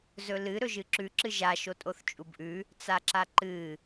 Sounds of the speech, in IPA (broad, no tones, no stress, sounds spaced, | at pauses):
z ɵ l ɨ ɾ ɵ ʒ ɨ ǁ ʉ ǁ ɨ ʒ a ʃ o tʼ o θ t͡ʃʼ u b ʔ ʉ | t͡s a ǁ a ǃ ɨ